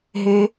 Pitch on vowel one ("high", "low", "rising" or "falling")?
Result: low